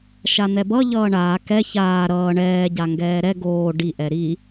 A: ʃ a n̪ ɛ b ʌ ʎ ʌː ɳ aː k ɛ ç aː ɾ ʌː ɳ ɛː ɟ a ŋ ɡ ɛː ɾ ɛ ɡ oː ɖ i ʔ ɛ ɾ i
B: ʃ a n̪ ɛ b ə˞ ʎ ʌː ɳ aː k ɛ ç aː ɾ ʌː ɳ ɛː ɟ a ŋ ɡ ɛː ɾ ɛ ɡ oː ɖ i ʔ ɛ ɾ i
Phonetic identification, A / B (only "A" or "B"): A